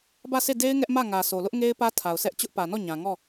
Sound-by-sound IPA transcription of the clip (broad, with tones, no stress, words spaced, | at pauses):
bä˦˨sʰe˦˨ de˦ɪ̯ ŋɛ˦ʔmä˦˨ŋä˨sʰo˨ lʊ˦ʔŋe˦ɪ̯ pä˦ tʰa˨ʊ̯sʰɛ˦ʔ t͡ɕʊ˦ʔpä˨nɔ˦˨ ɲã˨ŋɔ˦˨